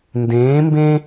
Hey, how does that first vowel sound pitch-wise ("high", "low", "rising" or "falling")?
rising